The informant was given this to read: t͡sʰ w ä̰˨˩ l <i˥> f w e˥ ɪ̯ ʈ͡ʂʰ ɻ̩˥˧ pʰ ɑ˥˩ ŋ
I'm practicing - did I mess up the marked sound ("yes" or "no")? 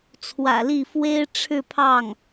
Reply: yes